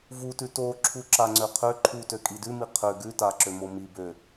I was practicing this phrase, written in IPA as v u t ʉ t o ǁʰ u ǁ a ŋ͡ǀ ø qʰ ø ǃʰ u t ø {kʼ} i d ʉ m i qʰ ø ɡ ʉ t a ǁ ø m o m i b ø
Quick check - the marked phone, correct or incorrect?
correct